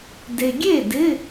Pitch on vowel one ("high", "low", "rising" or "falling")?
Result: low